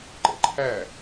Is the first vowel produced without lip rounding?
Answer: yes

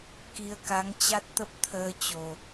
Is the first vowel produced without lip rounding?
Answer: yes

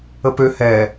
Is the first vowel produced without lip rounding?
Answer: yes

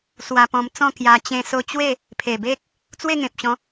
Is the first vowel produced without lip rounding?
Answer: yes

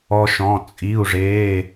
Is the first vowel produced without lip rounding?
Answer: no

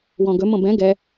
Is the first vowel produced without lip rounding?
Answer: no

